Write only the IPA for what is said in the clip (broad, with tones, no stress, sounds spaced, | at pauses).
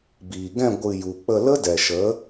b iː˨ ɡ ɛ̃˦˨ ɡʷ ɨ˧ j u˨ k͡p ə˧ l ə˦ d ɛ˨ ʃ ə˨˦